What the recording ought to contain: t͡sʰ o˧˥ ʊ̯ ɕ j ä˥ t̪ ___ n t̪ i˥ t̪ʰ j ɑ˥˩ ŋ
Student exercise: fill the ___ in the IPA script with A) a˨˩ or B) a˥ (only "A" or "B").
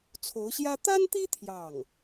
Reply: B